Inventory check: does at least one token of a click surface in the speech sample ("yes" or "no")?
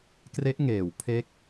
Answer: no